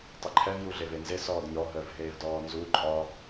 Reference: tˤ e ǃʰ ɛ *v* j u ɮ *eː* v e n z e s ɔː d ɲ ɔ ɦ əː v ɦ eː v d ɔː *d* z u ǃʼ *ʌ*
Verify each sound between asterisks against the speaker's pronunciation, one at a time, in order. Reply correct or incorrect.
correct, incorrect, incorrect, incorrect

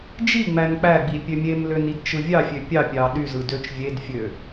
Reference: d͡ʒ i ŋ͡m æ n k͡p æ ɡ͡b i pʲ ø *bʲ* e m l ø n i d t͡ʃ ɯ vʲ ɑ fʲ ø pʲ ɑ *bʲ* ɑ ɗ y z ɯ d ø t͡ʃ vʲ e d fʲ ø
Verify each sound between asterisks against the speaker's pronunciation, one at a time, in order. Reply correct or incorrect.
incorrect, incorrect

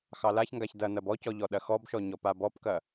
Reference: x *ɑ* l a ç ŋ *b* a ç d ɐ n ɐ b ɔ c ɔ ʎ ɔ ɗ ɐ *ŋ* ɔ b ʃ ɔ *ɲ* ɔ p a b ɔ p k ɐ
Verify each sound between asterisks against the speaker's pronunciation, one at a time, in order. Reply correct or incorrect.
correct, incorrect, incorrect, correct

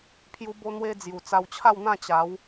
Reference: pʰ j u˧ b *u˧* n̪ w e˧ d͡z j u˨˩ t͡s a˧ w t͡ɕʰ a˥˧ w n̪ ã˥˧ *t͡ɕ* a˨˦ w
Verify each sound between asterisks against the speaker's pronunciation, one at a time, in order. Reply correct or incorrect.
incorrect, correct

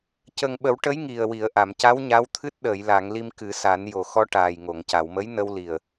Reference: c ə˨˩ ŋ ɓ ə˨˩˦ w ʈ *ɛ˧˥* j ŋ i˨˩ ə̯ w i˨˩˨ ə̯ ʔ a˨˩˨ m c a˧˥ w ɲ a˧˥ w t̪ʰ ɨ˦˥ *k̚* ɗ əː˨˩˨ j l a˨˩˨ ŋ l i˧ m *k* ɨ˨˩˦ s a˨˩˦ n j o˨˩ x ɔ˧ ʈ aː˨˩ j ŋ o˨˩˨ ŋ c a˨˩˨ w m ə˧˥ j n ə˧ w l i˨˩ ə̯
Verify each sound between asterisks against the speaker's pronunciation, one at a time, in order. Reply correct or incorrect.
incorrect, incorrect, correct

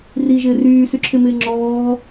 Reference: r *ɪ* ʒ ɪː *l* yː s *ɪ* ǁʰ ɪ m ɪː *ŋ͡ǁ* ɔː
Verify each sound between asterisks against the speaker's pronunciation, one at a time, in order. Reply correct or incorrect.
incorrect, incorrect, incorrect, correct

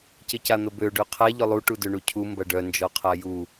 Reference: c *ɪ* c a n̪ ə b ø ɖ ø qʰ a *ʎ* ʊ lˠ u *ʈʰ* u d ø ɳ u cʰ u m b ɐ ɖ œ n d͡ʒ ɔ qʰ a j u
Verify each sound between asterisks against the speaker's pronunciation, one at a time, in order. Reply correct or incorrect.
correct, correct, incorrect

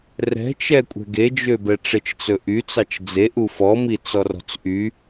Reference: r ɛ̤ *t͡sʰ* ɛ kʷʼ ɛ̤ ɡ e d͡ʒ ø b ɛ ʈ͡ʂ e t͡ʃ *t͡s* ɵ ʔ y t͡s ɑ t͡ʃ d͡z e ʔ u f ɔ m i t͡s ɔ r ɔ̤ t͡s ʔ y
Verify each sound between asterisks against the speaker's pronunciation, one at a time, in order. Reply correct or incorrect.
incorrect, correct

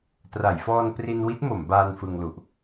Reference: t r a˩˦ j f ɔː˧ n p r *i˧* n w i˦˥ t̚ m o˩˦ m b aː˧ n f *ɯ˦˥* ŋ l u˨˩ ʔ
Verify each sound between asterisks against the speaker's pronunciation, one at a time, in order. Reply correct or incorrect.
correct, incorrect

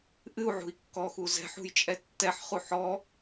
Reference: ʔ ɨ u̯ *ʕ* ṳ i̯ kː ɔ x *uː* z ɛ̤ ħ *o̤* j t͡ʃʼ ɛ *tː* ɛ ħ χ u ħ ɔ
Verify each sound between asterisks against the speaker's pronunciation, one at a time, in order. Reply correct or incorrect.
correct, incorrect, incorrect, correct

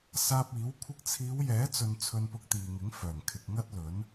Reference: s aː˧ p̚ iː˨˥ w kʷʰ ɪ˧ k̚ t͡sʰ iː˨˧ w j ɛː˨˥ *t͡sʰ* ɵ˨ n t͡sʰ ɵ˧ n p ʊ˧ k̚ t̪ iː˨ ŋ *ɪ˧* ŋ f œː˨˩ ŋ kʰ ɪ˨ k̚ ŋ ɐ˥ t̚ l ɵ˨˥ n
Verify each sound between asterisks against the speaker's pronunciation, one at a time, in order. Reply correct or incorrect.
incorrect, incorrect

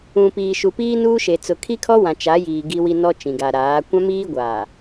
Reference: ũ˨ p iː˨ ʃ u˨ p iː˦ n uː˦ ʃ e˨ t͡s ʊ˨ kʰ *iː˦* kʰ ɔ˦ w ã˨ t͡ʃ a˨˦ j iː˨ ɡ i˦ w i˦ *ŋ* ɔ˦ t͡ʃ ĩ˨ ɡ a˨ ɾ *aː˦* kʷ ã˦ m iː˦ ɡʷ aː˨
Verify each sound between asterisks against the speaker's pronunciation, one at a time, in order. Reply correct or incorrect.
incorrect, incorrect, incorrect

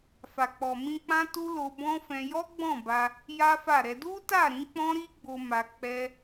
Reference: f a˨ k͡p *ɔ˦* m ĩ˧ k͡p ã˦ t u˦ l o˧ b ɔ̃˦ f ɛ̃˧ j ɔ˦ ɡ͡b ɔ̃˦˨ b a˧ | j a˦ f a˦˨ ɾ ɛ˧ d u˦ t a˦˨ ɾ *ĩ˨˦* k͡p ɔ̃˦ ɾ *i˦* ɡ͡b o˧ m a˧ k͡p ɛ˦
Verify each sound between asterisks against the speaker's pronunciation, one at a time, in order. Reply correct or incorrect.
incorrect, correct, correct

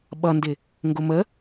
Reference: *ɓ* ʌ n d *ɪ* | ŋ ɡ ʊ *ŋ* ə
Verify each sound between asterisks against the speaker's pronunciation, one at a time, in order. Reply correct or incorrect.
correct, correct, incorrect

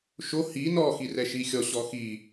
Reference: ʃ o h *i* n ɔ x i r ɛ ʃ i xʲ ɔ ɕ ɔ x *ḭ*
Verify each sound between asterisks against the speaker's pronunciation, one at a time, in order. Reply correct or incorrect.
correct, incorrect

